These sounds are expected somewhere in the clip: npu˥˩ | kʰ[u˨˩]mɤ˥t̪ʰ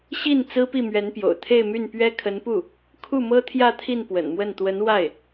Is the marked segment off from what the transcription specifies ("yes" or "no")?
yes